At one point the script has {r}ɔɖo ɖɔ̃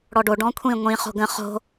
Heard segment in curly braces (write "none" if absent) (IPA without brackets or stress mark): ɽ